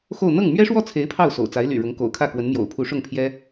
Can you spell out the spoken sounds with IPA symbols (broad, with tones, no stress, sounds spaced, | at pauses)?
x o˥˧ ʊ̯ n̪ ɤ˥˩ ŋ m ɥ ɛ˥ ʂ w ɔ˥˩ t͡sʰ e˧˥ ɪ̯ pʰ ɑ˥˩ ʊ̯ s o̰˨˩ ʊ̯ t͡s a˧˥ ɪ̯ l y̰˨˩ ɻ ʊ˧˥ ŋ k o̰˨˩ ʊ̯ kʰ ä˥˩ k w ə˧˥ n m j o̰˨˩ ʊ̯ pʰ u˧˥ ʂ ʊ˥˩ ŋ pʰ j ɛ˥